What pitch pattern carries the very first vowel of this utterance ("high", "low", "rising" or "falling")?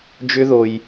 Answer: high